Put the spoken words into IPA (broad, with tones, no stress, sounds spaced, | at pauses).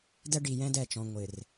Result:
d ɛ˦ ɖ i˨ j ɛ̃˦ d ɛ˦˨ t͡ʃ ɔ̃˨ ŋʷ ɪ˨ r